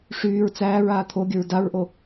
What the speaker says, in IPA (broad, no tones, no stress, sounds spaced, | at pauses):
ʂ yː ɹ t͡s æː ɹ aː t̪ʰ o ɡʲ ə ɹ d a ɹ ʔ o